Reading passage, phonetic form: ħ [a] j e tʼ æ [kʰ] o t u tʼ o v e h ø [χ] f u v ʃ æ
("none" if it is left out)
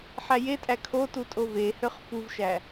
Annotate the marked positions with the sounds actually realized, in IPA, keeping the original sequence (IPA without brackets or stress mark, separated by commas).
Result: æ, kʰ, χ